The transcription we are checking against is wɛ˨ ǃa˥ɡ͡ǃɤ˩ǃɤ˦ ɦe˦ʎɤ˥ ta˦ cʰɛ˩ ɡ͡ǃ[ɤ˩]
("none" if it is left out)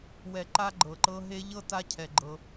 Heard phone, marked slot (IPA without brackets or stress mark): ɤ˩